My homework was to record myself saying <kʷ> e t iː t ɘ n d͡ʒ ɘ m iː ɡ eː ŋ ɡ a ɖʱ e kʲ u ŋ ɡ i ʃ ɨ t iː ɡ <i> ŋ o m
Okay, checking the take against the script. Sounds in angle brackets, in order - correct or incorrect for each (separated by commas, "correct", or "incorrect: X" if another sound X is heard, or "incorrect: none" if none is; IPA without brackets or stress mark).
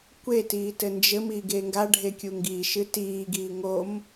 correct, incorrect: iː